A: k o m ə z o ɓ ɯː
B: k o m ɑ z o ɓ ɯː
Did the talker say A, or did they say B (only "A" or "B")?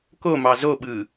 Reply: B